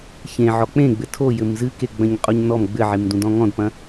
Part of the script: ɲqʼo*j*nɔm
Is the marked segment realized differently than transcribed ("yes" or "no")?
yes